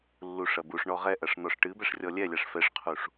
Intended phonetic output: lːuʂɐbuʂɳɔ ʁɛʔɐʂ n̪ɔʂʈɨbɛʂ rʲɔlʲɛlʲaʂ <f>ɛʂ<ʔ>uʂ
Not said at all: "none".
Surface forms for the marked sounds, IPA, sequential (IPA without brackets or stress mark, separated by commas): f, qʰ